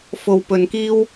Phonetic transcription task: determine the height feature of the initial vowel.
mid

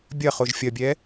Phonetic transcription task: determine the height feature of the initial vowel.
low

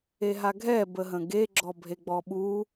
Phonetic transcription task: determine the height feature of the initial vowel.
mid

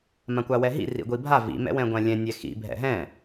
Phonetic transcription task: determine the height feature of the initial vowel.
low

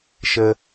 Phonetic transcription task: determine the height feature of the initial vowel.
mid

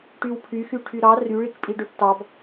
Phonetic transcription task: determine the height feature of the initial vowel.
high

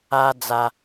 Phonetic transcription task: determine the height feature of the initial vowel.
low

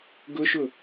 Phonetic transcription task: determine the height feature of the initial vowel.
high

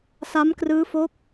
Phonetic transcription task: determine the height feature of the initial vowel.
low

